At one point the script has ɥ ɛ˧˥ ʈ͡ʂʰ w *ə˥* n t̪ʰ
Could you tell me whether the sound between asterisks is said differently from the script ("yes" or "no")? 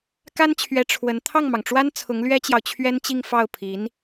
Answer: yes